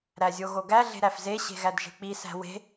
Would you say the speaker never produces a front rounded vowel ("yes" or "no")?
yes